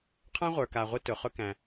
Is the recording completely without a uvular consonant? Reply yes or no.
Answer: no